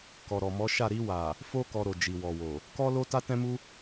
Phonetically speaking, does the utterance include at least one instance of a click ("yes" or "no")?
no